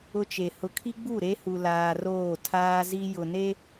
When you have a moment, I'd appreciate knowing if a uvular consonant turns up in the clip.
no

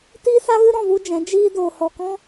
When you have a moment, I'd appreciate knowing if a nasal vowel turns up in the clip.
yes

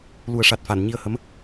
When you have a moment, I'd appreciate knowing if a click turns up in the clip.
no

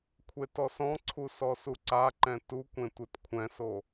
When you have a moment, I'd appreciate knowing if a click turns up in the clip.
yes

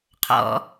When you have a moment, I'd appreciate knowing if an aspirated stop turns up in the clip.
yes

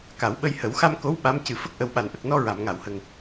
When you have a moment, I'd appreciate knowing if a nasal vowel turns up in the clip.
no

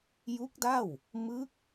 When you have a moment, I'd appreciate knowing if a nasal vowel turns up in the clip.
no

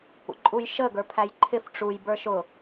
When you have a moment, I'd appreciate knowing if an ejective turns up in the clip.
yes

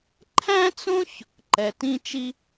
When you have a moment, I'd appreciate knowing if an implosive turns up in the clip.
no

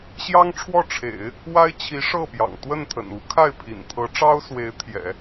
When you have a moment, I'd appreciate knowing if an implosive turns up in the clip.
no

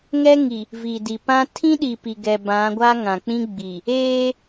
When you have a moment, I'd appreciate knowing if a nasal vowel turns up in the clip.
yes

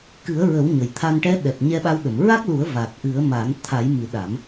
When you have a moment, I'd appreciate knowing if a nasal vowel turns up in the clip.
no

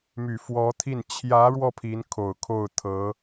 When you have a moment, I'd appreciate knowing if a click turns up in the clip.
no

